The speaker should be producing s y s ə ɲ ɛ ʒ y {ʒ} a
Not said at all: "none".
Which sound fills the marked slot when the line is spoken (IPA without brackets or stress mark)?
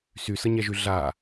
ɮ